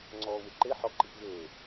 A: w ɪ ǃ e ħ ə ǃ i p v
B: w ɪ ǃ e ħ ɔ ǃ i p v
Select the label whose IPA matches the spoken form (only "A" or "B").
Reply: B